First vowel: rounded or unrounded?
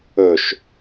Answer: rounded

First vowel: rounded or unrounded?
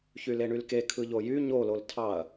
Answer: rounded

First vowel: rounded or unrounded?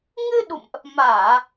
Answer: unrounded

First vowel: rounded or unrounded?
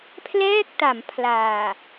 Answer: unrounded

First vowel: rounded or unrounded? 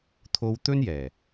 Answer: rounded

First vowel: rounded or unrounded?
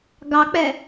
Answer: unrounded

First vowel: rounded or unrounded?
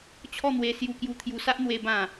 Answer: rounded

